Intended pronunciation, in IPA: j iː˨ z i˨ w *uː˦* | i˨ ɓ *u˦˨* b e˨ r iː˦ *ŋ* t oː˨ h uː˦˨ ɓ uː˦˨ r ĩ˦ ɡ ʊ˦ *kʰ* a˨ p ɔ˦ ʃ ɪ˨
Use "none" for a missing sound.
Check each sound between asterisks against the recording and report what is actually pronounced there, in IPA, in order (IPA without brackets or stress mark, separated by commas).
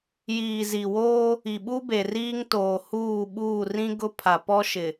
oː˦, u˦, ŋ, pʰ